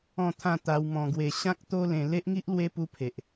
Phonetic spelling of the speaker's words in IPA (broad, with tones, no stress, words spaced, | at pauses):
ɔ̃˥˧t̪ʰã˥˧ t̪a˧w mɔ̃˧ɡwe˧ ɕã˦k̚t̪o˦lẽ˧ le˦ʔŋi˦ʔ lwe˦ pu˧pʰe˨ʔ